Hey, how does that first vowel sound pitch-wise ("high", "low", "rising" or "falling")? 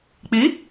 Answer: rising